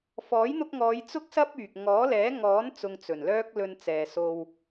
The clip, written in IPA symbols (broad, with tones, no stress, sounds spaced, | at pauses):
f ɔː˨˥ j n̪ ʊ˧ k̚ ŋ ɔː˨˧ j t͡s ʊ˥ k̚ s ɐ˥ p̚ yː˨ k̚ ŋ ɔː˨˥ l ɛː˨˥ ŋ ɔː˨˥ n t͡s ʊ˧ ŋ t͡s ɵ˨˩ n l œː˥ k̚ l ɵ˧ n t͡s ɛː˨ s o˧ w